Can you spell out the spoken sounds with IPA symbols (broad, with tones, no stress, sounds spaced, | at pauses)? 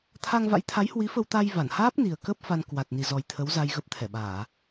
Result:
t̪ʰ a˧ ŋ v a̰˧˥ j t̪ʰ a˨˦ j h w i˨˦ f ə˧ w t̪ a˧ j v a˧˩ n h aː˦˥ p̚ n i˨˩ ə̯ k ə˦˥ p̚ f a˧ n k w a˨˩ t̚ n i˨˩ z ɔ˨˩ j t̪ʰ ə˨˦ w z a˧ j ɣ ə˦˥ p̚ t̪ʰ ɛ˧˩ ɓ aː˧˩˨